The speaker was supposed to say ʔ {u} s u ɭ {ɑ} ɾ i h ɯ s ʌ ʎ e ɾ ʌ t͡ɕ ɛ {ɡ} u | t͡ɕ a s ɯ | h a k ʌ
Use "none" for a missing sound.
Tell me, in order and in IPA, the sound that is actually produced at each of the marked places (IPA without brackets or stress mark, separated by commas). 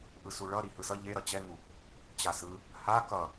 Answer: ɯ, ʌ, ŋ